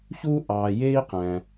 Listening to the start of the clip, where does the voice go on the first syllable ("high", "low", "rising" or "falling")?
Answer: high